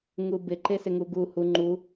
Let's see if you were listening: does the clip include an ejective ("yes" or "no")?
no